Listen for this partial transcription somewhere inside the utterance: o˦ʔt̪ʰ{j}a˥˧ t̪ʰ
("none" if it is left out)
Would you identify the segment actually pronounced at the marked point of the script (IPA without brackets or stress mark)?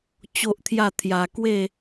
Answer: j